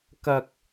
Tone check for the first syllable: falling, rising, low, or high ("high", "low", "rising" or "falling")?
high